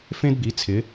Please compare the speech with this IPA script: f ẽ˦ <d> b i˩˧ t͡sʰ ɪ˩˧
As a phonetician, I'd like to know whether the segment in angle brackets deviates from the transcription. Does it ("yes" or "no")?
no